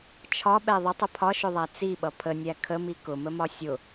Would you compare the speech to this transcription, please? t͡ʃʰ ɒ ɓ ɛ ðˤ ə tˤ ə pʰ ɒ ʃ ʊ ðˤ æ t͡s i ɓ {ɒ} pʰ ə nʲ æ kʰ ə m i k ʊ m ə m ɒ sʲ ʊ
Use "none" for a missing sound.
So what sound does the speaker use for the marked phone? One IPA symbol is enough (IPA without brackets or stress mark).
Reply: ʌ